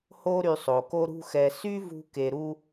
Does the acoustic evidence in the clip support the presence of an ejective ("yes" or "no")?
no